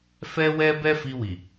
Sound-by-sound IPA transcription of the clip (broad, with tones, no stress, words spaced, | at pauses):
fɛ˦wɛ˦ bɛ˦fi˧wi˨